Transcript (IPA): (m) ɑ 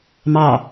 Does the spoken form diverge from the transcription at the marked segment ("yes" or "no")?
no